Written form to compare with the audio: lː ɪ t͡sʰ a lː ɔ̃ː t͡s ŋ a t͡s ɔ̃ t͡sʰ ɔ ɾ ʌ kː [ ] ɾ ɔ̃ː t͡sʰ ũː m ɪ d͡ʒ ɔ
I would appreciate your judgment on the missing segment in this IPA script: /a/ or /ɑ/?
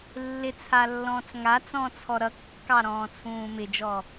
ɑ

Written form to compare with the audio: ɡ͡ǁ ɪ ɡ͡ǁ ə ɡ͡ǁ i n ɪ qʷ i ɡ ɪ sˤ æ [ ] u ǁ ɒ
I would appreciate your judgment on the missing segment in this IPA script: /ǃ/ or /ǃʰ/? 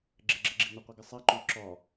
ǃ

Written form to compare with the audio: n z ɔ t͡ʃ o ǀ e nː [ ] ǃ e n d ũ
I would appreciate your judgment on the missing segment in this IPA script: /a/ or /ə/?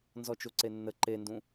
ə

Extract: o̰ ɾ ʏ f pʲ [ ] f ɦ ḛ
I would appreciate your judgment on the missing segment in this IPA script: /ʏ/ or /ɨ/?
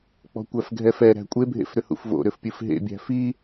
ɨ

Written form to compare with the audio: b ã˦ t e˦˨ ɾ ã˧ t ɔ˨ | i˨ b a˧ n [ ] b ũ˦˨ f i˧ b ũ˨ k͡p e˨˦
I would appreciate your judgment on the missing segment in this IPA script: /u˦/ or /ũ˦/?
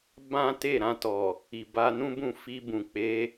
ũ˦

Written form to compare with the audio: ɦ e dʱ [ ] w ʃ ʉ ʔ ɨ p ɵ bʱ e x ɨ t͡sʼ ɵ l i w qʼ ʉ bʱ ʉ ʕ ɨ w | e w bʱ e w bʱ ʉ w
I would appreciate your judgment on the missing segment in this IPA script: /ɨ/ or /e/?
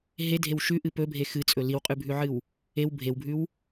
e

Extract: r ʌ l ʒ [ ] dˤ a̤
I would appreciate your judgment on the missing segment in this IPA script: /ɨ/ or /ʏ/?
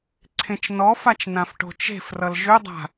ʏ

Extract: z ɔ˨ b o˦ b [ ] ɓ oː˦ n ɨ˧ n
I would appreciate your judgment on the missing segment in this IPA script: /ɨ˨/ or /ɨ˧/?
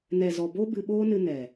ɨ˧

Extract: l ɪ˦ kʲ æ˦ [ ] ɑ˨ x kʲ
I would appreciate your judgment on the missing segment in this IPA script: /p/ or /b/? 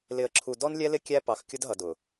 p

